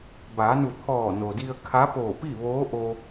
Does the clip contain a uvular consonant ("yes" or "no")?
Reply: no